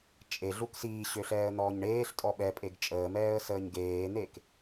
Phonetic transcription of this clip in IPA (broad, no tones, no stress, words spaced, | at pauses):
t͡ʃʼe ɮuksiːɕø ɬɛːə̯n̪ɔːɲɳeːɬtʼɔ ɓɛpʼeɡ t͡ʃʼəːmɛːə̯ səːɲɡeːn̪ek